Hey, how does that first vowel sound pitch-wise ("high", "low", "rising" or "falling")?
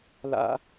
high